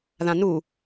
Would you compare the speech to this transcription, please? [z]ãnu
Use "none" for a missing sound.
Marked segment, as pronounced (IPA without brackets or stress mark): ð